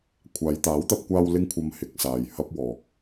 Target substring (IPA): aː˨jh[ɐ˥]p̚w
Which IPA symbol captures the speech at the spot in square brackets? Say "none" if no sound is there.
ɐ˥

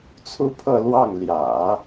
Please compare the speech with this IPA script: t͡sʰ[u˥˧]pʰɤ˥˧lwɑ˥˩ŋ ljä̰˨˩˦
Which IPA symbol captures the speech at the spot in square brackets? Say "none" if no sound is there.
u˥˧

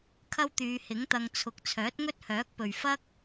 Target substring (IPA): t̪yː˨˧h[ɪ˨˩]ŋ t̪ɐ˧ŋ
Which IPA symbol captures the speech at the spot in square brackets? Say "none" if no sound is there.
ɪ˨˥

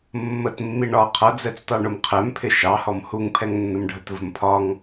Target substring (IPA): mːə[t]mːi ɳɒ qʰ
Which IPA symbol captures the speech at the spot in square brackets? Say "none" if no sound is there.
t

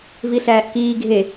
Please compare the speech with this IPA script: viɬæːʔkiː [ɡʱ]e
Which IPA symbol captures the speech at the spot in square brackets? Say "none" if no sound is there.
ɡʱ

